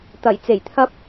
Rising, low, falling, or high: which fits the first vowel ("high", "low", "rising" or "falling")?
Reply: low